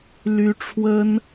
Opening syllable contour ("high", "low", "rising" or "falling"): high